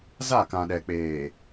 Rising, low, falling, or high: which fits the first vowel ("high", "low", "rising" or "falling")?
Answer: falling